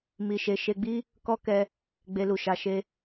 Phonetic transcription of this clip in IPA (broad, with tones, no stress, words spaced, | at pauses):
mi˧ʃe˧ ʃe˧ɡ͡bi˦ | kɔ˦kɛ˧ | ɡ͡be˦lu˧ʃa˧ʃe˦